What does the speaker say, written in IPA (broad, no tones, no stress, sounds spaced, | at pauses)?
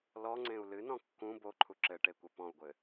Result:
l ɔ ŋ͡ǀ ẽ u̯ l ɨ n ɔ̃ kː ũ b o ǃʰ u ǁ ɘ ʈ e kʷ ɐ p ɔ̃ u̯ ɡʷ ɘ